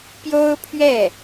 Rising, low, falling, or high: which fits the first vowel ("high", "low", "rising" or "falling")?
high